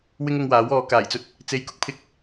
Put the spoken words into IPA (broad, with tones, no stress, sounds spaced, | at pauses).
w ɪ˥ ŋ ʊ˧ ŋ w aː˨˥ w ɔː˨˧ k aː˨˩ j t͡s ɵ˧ t̚ | t͡s e˧ j k ʊ˥ k̚ pʰ ɪ˧ k̚